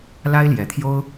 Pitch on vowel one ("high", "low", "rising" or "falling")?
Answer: high